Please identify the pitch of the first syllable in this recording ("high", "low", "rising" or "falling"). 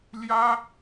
high